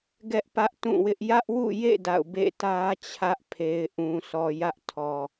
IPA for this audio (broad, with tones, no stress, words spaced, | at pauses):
ɡɛ˦ʔpä˦ʔtũ˦˨wɪ˦ʔ jä˦ʔwṵ˦˨jḛ˦˨ da̰˦˨ʊ̯ bḛ˦˨tä˦t͡ɕʰä˦ʔ pʰe˨ɪ̯ʔũ˨sɔ˨ jä˦ʔtʰɔ˨